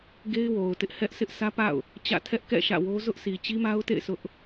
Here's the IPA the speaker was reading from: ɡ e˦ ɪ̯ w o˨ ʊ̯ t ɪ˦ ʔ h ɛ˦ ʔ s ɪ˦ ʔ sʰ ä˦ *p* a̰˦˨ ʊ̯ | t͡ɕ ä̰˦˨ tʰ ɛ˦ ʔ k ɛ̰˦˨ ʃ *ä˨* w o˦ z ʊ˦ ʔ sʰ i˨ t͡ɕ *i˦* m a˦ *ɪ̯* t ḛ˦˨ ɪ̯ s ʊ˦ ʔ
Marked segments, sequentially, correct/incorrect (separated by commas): correct, incorrect, correct, incorrect